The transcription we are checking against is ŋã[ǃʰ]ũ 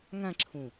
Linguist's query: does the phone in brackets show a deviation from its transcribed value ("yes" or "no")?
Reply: yes